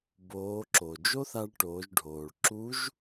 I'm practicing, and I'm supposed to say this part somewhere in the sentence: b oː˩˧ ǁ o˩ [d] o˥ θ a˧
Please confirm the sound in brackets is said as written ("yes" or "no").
no